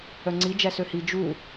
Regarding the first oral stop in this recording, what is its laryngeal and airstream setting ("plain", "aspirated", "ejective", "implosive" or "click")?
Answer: click